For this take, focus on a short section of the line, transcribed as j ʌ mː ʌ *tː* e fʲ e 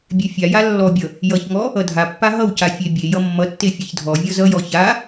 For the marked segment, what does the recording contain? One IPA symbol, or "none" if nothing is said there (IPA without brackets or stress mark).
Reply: tː